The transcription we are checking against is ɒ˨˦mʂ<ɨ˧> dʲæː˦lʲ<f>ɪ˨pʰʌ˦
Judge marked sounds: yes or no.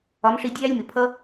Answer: no, no

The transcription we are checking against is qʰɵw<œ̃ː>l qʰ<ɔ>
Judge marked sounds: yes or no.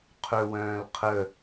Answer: yes, no

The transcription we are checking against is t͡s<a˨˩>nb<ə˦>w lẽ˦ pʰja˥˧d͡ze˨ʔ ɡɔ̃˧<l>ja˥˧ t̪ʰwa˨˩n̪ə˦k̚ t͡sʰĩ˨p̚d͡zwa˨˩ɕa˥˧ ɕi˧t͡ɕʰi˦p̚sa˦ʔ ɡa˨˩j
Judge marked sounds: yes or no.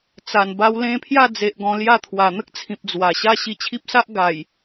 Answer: yes, no, yes

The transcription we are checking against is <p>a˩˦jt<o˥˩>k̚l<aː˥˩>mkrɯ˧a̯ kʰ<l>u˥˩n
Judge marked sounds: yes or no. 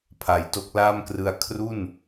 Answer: no, no, yes, no

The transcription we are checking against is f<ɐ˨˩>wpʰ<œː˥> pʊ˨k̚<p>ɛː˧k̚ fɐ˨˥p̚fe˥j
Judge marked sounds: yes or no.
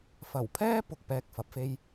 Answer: yes, no, yes

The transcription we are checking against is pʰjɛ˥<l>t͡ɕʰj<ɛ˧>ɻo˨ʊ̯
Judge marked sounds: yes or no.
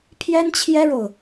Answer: no, no

